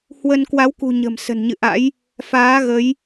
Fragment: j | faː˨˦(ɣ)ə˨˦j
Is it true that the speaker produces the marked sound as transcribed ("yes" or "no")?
yes